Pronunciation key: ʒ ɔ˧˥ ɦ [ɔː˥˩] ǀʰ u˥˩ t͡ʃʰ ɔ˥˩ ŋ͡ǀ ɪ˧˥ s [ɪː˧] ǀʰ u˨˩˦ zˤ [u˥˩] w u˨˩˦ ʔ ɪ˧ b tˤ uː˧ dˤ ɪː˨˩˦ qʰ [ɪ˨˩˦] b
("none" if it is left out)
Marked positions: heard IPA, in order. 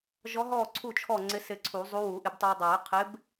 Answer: ɔː˥˩, ɪ˧, u˧˥, ɪ˧˥

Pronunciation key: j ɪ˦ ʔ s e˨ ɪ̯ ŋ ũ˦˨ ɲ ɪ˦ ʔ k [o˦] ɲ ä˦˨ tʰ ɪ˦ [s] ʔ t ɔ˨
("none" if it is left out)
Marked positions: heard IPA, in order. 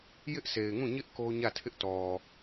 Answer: o˦, none

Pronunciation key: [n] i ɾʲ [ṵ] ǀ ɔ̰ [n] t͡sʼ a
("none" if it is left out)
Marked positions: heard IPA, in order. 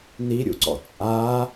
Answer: n, ṵ, none

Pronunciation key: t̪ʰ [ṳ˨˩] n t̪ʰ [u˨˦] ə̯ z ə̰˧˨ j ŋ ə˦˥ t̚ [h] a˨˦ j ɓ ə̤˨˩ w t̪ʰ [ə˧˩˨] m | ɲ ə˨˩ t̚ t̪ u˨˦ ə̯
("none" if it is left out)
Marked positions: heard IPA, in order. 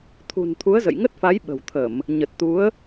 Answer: ṳ˨˩, u˨˦, f, ə˧˩˨

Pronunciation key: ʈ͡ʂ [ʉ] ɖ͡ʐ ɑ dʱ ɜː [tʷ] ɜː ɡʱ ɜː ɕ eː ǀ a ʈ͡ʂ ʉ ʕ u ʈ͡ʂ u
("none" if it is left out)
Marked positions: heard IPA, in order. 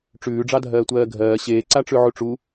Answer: ʉː, tʷ

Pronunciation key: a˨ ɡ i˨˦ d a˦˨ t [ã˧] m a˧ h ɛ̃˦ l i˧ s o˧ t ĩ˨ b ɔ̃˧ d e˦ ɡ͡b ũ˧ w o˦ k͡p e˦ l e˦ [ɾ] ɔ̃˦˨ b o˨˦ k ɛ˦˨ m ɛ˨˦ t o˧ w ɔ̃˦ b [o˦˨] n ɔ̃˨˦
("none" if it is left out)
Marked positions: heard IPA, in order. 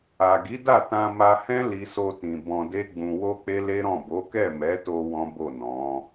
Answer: ã˧, ɾ, o˦˨

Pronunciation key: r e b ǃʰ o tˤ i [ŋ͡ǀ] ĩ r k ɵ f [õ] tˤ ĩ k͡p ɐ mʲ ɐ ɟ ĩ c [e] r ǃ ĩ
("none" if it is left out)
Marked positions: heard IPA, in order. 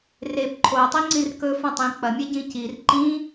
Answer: ŋ͡ǀ, õ, i

